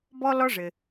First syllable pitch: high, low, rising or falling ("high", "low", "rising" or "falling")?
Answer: high